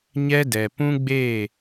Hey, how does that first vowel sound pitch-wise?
high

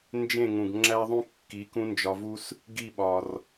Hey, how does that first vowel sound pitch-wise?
falling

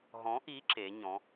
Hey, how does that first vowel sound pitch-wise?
rising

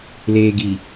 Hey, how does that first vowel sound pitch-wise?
low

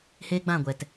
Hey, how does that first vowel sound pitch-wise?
high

